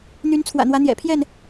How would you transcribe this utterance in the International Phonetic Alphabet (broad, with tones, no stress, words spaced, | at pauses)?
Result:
n̪y˨˦nt͡sʰwä̰˨˩n̪wä˨˦ n̪jɛ̰˨˩pʰjɛ˥˨n